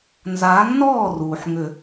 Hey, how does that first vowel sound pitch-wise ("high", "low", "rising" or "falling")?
rising